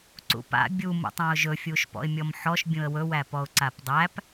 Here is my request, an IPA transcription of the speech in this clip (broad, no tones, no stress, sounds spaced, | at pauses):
ǀ ṵ p a̰ bʲ u m ṵ tˤ ã ʊ̯ ʒ ɵ fʲ u ʃ p ɔ̰ ɪ̯ mʲ ɔ m ħ ɔ ʃ bʲ ũ ə̯ w ɵ w æ p ɔ ʊ̯ ǀ a p dˤ æ p